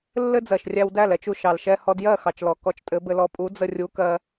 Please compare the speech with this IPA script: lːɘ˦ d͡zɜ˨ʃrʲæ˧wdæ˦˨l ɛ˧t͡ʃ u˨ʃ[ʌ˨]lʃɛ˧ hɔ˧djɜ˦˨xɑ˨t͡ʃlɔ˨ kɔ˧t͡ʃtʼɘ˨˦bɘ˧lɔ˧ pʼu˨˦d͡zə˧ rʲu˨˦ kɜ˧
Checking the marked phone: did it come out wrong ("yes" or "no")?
yes